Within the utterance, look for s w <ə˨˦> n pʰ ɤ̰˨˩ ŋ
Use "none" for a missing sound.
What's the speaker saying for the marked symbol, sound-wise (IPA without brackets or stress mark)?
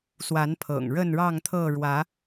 a˨˦